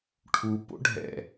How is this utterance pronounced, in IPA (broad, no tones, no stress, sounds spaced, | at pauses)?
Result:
ʈʰ u p o̰ ɖʱ ɛ̰